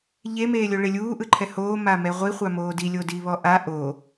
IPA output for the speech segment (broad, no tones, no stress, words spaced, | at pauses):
ʎemeːlʲo ɭelʲuːʔɯǃʰɛ hoːmamɛ ʁʷiχʷa moːdi lʲodiβɔʔa ʔo